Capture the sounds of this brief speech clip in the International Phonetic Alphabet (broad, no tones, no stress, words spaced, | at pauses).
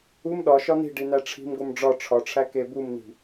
um ɗɒ ʃɒn̪i̤ ɖin̪æʈ͡ʂʰi̤mɡom ɖ͡ʐɒ ʈ͡ʂʰɒʈ͡ʂʰæ kebumn̪i̤